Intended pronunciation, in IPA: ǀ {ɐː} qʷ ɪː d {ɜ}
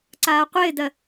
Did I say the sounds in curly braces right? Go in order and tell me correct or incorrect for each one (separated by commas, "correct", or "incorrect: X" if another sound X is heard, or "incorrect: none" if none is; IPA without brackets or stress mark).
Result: incorrect: aː, correct